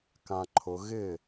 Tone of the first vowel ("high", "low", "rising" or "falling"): low